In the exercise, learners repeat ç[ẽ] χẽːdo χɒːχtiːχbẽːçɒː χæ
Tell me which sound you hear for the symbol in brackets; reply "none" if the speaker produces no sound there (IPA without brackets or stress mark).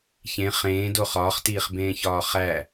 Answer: ẽ